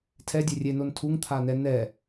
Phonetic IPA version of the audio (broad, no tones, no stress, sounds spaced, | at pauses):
tʰ ɛ dʲ e rʲ e n o n tʰ u ŋ t̪ʰ a n ɛ n ɛ